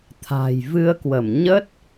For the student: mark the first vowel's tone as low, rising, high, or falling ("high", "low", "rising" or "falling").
low